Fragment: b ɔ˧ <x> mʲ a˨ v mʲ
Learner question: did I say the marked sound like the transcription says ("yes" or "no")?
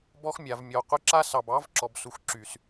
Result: yes